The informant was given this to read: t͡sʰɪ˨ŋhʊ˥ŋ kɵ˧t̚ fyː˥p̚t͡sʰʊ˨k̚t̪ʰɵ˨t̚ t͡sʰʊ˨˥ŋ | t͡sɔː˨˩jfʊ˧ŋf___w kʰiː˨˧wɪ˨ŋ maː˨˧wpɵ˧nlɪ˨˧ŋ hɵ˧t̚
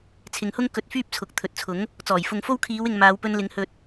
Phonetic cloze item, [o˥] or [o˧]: o˥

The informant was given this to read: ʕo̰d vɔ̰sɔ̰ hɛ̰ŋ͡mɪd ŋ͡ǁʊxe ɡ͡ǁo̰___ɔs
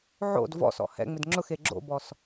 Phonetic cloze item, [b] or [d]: b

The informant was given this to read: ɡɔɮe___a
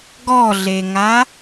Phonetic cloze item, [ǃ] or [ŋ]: ŋ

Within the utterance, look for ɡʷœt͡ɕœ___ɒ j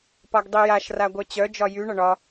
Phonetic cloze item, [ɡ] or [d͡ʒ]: d͡ʒ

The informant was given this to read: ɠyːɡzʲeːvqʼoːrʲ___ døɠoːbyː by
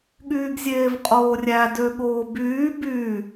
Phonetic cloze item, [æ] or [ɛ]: æ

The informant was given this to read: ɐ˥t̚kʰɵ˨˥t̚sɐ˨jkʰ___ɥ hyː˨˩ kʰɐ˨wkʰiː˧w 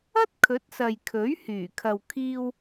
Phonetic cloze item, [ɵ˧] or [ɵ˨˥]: ɵ˨˥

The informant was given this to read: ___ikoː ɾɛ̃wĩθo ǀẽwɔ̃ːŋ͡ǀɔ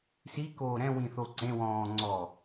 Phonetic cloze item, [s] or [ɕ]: s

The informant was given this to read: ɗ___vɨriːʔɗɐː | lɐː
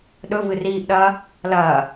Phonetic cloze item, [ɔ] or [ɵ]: ɵ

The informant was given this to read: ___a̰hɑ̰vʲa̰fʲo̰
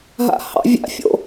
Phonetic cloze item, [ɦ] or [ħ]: ɦ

